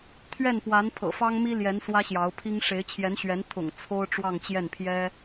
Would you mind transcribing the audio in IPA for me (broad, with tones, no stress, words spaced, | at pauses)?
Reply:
t̪ʰɥɛ˥˩npwa˧˥n pʰɤ̰˨˩fɑ˥ŋmi˥ljɛ˧˥n swä˥ɕjɑ˧˥ʊ̯pʰi˥ŋ ʂe˧˥ɪ̯t͡ɕʰjɛ˧˥nɕɥɛ˧˥n t̪ʰʊ̰˨˩ŋ t͡sʰo˥ʊ̯ ʈ͡ʂwɑ˥˧ŋt͡ɕjɛ˥˩npʰjɛ˥